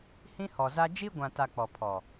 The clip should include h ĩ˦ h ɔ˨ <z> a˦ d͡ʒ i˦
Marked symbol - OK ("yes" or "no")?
yes